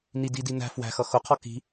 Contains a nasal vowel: no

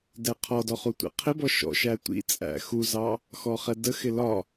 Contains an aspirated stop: yes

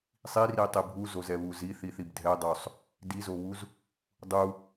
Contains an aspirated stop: no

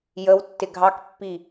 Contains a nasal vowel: no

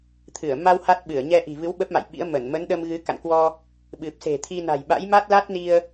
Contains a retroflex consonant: no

